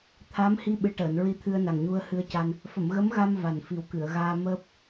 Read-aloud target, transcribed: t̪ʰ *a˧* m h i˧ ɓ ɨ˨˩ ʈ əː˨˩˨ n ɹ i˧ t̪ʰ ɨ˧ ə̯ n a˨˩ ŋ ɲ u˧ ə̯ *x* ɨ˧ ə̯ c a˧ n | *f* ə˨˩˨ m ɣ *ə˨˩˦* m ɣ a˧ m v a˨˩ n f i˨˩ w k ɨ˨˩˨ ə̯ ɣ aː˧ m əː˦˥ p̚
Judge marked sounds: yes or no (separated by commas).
no, no, yes, no